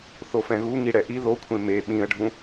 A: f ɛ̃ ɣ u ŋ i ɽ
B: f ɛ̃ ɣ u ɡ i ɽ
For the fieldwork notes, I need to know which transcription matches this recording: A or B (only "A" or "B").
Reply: A